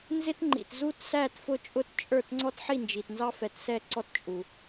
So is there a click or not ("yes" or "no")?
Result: yes